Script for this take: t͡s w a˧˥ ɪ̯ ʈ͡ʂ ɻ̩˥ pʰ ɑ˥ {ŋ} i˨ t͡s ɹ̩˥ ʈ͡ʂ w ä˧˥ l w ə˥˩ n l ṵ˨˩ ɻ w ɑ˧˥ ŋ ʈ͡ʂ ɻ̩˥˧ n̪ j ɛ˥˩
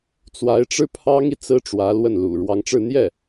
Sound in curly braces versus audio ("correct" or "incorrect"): correct